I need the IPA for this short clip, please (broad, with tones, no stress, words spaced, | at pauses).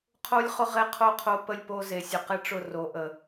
qʰo˦lʲχʊ˦ ʁe˦qʰo˦˨qʰo˦ pə˦lʲpo˦ze˨ sʲʊ˨qe˦ʈ͡ʂʊ˦˨ ro˨˦ʔə˨